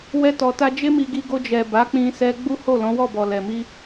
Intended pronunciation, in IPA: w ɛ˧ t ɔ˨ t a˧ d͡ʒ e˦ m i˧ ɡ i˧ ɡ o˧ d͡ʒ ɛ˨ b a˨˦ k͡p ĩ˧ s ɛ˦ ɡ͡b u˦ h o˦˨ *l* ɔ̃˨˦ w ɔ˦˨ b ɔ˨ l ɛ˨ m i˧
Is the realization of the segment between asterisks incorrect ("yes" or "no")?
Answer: no